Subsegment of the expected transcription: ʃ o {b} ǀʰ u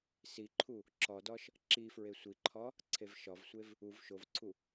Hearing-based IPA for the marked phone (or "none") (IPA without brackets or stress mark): v